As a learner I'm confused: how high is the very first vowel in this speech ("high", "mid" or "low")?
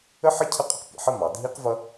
mid